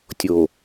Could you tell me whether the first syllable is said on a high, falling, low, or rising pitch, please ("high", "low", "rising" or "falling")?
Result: low